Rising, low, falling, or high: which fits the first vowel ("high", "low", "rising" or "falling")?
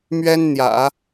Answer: high